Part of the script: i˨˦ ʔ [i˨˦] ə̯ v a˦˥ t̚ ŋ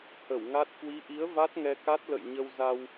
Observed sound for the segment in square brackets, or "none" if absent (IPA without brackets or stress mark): i˨˦